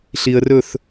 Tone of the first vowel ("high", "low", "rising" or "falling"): low